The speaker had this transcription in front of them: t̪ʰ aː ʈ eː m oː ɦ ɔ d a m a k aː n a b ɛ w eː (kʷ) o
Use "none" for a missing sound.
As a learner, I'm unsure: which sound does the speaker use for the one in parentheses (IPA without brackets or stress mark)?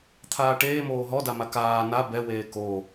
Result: k